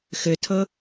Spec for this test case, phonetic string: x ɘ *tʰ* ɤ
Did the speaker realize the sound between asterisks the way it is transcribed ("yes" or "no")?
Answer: yes